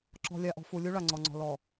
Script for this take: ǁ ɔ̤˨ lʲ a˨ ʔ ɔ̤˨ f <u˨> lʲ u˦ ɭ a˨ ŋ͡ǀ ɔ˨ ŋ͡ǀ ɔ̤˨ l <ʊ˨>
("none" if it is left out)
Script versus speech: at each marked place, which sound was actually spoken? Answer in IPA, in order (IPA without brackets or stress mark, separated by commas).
u˨, ɔ˨